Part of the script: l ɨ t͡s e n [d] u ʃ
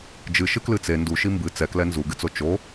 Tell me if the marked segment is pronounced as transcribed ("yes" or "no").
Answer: yes